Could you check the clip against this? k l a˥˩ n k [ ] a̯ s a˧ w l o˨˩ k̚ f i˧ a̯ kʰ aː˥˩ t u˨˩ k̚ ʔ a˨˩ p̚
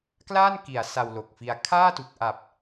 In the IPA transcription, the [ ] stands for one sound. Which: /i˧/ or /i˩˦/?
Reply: i˩˦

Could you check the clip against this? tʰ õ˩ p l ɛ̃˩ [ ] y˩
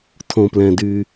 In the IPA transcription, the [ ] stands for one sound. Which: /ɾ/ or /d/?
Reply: d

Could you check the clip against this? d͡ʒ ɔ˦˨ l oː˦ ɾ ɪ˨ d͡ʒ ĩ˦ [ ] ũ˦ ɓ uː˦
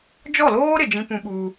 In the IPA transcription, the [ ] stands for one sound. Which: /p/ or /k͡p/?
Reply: p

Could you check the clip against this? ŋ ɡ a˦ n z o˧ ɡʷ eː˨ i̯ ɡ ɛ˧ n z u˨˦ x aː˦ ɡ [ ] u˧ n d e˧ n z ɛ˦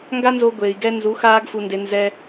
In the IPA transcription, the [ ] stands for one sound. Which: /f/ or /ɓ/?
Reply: f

